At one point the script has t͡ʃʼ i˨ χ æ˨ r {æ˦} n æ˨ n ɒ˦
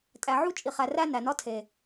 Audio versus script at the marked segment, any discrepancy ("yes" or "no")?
no